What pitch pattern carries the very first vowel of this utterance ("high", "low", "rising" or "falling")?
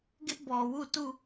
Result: high